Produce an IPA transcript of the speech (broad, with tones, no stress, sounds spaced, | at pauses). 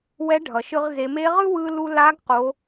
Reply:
w ɛ˧˥ ɖʱ ʌ˩ ʃ ɯ˧ ʁ z e˩˧ m e˧˥ ʁ ɯ˥ w ɯ˧ l u˧ l a˧˥ ɡ q o˩˧